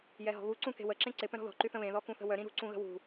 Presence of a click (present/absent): present